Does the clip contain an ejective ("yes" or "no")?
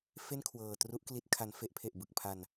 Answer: no